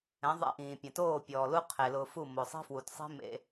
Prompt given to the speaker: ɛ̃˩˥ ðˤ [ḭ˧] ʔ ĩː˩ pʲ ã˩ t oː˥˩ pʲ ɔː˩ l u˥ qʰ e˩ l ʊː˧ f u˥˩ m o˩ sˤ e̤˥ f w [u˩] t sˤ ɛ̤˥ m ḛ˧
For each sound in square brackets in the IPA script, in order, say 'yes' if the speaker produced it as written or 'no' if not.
no, yes

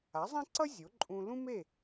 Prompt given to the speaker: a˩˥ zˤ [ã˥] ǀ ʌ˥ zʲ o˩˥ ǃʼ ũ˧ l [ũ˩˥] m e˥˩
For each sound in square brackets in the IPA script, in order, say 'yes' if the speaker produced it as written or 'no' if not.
yes, no

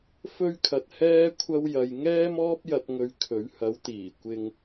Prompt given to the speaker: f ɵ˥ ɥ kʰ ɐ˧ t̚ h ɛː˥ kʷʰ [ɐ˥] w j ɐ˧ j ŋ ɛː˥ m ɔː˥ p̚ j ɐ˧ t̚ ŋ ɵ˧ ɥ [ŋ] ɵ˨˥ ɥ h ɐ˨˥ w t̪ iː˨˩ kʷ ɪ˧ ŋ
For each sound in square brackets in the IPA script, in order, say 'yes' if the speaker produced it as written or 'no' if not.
yes, no

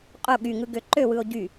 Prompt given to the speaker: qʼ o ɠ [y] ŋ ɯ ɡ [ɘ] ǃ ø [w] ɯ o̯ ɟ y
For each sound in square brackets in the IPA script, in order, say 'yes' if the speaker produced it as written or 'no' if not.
yes, no, yes

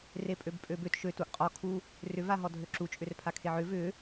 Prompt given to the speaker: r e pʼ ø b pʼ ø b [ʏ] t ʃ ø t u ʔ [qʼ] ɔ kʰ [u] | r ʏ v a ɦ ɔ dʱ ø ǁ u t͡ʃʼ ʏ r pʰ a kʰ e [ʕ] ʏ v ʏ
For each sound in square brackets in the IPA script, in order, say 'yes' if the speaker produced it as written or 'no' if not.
yes, yes, yes, yes

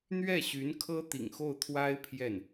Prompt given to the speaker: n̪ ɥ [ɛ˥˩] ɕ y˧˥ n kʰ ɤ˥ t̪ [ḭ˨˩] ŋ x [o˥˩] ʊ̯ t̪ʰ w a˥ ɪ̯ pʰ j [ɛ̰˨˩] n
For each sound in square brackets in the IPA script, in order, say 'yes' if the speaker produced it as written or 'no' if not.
yes, yes, yes, no

